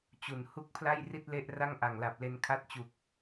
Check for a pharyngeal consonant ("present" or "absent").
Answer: absent